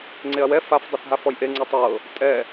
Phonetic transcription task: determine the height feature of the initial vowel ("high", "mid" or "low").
mid